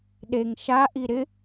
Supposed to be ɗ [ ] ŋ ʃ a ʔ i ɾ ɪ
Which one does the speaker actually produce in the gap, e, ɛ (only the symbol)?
e